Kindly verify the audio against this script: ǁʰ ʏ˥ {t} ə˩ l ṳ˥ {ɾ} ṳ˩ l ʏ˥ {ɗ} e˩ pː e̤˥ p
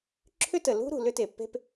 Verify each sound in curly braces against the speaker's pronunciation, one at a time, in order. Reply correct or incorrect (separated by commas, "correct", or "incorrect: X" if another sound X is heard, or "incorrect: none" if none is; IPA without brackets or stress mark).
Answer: correct, correct, incorrect: t